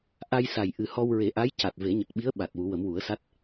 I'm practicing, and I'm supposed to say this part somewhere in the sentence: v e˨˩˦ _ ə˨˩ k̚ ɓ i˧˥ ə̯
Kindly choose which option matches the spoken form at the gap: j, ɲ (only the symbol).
ɲ